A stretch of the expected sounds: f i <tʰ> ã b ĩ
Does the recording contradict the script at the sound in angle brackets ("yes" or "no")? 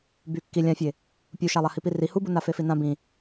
yes